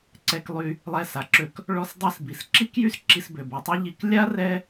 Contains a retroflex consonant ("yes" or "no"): yes